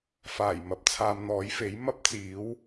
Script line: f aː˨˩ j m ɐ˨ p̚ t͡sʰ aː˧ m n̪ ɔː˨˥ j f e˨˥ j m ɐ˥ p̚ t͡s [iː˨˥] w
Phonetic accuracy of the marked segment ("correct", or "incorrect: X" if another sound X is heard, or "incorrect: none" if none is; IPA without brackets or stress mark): correct